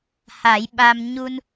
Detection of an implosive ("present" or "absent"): present